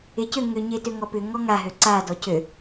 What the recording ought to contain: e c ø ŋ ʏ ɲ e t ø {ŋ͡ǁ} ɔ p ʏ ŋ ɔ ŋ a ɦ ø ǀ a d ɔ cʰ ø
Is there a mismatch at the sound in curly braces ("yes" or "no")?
yes